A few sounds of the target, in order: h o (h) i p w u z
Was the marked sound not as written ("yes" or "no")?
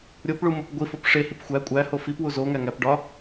yes